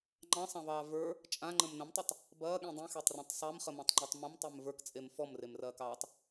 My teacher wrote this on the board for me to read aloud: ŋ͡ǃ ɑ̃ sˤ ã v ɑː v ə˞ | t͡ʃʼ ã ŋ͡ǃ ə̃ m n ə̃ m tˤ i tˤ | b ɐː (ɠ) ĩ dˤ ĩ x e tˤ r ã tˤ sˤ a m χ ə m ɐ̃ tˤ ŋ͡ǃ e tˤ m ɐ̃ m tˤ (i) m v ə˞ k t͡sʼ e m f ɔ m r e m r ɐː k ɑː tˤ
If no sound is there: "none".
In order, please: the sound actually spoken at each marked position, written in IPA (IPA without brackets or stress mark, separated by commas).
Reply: ɠ, e